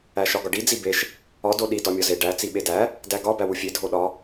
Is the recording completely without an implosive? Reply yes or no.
no